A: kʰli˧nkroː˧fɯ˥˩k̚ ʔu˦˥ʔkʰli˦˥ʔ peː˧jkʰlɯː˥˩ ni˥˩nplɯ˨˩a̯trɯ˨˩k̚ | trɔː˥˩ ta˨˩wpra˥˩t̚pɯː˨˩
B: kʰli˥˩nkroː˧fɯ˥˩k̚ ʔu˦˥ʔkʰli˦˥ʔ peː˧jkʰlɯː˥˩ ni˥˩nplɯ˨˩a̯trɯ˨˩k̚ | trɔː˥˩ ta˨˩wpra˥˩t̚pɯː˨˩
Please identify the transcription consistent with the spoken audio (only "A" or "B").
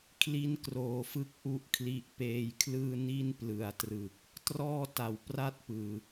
B